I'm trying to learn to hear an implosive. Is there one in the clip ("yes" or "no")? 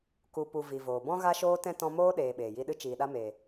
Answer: yes